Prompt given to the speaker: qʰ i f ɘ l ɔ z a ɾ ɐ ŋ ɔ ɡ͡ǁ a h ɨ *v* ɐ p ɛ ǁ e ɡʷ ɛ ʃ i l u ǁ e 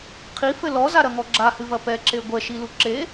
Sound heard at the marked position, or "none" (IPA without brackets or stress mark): v